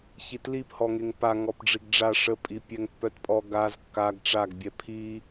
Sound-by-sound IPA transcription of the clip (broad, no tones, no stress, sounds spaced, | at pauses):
ç i t l i p h ɔ ŋ e ŋ p a ŋ ɔ p ɖ͡ʐ i ɡ ɖ͡ʐ a ʂ ə pʼ i pʲ ɛ ŋ pː œ t pʼ ɔ ɡ a z kː a ɡ ʈ͡ʂ a ɡ bʲ ɛ pʰ i